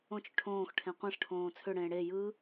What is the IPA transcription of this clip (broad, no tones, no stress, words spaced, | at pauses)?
õt͡ʃʏ ʈʰõːxʈʰẽ qʷẽʂ ʈʰõːt͡sʰʏɽẽː ɽe jɯ